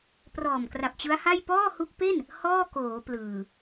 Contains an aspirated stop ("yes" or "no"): no